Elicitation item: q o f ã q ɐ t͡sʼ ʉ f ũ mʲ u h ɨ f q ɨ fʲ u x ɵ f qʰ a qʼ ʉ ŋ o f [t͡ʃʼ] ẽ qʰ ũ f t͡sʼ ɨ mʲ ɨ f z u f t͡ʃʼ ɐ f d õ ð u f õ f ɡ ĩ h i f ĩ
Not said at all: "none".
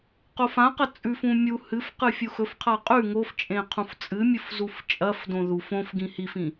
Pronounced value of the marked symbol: t͡ʃʼ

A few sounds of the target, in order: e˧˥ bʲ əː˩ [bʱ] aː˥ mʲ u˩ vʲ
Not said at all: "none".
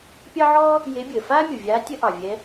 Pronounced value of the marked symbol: f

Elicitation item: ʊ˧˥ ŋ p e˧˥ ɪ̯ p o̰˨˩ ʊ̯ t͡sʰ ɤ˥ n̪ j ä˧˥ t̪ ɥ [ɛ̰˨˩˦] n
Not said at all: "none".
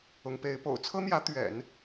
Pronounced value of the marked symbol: ɛ̰˨˩˦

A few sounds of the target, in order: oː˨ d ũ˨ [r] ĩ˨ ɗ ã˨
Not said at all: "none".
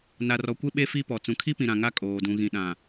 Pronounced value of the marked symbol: ɣ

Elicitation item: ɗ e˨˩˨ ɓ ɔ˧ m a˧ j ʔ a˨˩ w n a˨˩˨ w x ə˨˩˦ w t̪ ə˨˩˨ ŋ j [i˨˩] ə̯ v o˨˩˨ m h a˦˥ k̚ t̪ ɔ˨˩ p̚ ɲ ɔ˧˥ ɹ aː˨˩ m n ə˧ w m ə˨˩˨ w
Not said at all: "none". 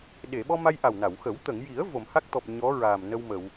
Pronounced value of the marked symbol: i˨˩˦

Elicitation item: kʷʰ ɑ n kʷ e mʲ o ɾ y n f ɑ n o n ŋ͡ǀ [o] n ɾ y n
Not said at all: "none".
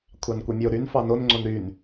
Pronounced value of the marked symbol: o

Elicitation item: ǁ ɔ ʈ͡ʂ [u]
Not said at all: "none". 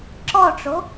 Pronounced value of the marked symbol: o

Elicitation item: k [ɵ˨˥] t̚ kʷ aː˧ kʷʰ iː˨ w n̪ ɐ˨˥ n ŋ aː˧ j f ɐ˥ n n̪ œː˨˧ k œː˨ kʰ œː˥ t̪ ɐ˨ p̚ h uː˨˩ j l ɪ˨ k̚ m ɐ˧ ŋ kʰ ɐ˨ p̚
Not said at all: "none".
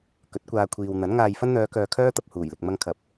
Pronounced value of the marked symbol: ɵ˨˥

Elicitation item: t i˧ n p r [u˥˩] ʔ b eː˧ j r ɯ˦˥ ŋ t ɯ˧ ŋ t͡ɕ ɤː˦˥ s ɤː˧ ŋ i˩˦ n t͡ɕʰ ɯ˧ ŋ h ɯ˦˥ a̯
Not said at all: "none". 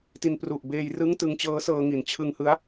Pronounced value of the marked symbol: u˨˩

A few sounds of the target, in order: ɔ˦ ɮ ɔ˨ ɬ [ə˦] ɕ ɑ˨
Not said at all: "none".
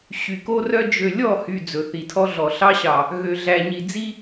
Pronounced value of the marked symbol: ɑ˦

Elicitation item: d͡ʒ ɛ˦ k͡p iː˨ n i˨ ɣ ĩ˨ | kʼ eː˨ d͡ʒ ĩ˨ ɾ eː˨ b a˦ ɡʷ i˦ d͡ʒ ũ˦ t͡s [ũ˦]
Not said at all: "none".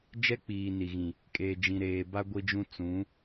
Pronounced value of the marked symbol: ũ˨˦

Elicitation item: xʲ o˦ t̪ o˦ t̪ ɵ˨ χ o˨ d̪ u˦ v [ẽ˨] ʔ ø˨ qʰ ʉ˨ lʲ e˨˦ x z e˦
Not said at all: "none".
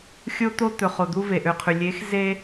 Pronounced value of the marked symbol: e˨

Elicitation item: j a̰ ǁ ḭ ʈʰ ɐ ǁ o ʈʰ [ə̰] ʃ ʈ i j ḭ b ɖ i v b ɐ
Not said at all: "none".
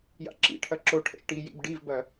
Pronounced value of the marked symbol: ɛ̰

